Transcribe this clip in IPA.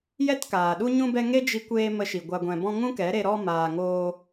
j ɛ˦ t k aː˨ ɗ u˦ ɲ ũ˧ b ɛ˧ ŋ e˦ d͡ʒ i˧ kʷ eː˧ m ə˧ ʃ i˨ ɡʷ a˧ ɡʷ ɛ̃˧ b ɔ̃˦ ŋ ũ˦ k ɛ˨˦ ɾ e˧ ɾ ɔ˧ m aː˨ ŋ oː˧

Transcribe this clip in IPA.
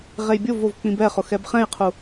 ʁ e j bʲ o v o v k͡p ĩ b ɛ χ ʊ x ɛ b χ ɛ̃ j qʰ u

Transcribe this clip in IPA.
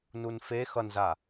n u n f e x ʌ n z a

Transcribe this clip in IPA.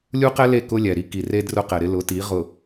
lʲ u˦ q ɛ˦ l e˦˨ k ʊ˦ lʲ ɛ˨ ɾ i˦ k i˨ r e˦ d r ʊ˦ q ɛ˨ ɾ ɪ˦ l ʊ˨˦ t i˨˦ ʁ ʊ˨

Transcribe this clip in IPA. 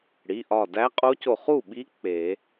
ɽ i˩˧˩ ʔ ɒ˧˩ d æ˧˥ qʼ o˧˥ c o˧˩ χ u˥˩ ɓ i˧˥ k͡p e˨˩˦

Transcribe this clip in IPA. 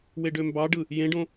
w e ɖ ø m b ɑ ɖ ɯ | j ẽ ɖ õ

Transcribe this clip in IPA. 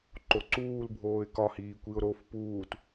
ǃ o ǀ uː l bʱ oː ɪ̯ k ɒ h iː kʷ i ʊ̯ ɾ o f p uː t

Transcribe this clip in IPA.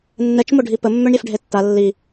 nː ɛ t͡ʃ m o ɖʱ i p ə mː ø ɳ ɾʲ ɛ f ɖʱ e tː a lː i

